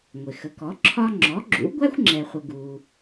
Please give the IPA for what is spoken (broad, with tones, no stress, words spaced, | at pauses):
ŋʷɪ˩xə˩˥ kɔ˩˥ ǁʰɒ˧ ŋ͡ǁɔ˩˥ɡ͡ǁṵ˩˥ ɡʷæ˥xʷŋ͡ǁɛ˩χʷə˩ ɡu˩